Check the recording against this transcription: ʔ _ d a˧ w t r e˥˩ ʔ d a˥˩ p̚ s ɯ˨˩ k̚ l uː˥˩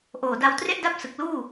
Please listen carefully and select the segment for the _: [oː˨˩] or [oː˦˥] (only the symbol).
oː˨˩